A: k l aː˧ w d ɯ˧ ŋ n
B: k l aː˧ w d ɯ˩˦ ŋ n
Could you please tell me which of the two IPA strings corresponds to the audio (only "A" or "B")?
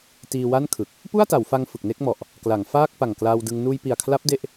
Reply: A